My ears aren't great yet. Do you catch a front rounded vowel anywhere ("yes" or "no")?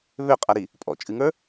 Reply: yes